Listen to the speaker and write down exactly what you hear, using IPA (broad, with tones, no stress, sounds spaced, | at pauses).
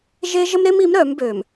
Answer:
ʒ e˦ ʒ ə˦ m ɾ e˦ m i˨˦ m ɾ œː˨˦ m b øː˨ m